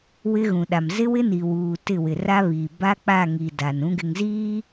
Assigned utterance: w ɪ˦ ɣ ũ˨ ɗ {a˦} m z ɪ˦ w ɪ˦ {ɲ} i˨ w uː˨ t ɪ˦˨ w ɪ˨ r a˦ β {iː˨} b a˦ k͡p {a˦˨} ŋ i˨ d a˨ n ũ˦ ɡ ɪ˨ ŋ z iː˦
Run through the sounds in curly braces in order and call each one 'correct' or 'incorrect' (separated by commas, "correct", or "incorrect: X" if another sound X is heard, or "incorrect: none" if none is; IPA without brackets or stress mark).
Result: incorrect: a˨, incorrect: n, correct, correct